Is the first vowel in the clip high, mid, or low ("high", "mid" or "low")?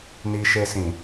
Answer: high